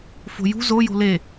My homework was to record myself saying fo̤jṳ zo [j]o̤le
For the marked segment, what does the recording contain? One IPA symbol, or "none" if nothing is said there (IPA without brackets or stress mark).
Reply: j